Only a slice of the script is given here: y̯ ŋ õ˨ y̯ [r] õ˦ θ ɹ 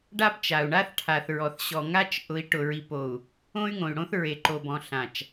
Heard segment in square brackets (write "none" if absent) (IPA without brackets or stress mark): ɽ